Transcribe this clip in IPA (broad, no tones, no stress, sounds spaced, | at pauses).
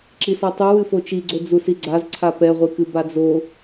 ǁ i s ɔ tˤ u w ɨ f o t͡ʃ i ɡ͡ǀ o d͡z u s i ɡ͡ǀ a z ǀʰ a p ɛ ʁʷ i k ɨ b a d͡z o